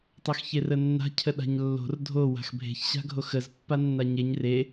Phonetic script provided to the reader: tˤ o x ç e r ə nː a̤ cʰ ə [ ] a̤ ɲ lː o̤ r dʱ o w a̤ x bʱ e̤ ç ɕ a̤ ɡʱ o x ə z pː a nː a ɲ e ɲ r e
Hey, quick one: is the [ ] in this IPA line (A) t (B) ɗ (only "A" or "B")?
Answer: B